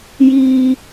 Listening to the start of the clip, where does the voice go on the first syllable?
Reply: high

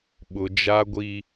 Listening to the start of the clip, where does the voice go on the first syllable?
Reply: high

